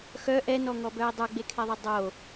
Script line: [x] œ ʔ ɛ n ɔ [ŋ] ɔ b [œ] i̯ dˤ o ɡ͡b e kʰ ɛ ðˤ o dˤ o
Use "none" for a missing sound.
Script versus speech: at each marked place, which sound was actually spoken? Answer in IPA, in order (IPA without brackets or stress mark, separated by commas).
x, ŋ, œ